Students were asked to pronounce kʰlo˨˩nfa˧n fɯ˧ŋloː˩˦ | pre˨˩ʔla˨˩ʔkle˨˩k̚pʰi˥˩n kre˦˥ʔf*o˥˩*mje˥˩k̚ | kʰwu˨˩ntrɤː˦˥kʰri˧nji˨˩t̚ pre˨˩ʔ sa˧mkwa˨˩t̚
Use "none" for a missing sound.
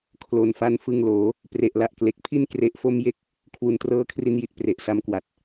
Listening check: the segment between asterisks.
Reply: o˥˩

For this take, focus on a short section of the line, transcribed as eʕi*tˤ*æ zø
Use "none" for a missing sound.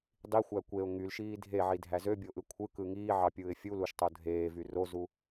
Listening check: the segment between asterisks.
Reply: dʱ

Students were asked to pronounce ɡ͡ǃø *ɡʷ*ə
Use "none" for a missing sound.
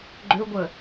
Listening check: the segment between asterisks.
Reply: ɡʷ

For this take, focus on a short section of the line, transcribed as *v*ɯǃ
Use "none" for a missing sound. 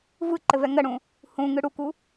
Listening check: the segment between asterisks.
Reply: v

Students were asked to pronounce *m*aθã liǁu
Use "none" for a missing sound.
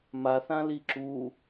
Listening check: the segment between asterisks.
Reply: m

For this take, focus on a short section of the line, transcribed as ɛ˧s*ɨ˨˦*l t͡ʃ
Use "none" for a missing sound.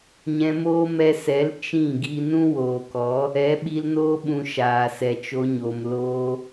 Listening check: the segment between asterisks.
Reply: ɛ˨˦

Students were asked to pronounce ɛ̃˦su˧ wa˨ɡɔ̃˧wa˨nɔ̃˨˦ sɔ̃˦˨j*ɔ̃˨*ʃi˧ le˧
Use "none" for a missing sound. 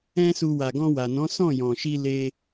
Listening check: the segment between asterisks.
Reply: ɔ̃˨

